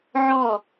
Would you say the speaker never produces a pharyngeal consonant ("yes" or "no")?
no